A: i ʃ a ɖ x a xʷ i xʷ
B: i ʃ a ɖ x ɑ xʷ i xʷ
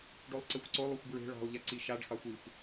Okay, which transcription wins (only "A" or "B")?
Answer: B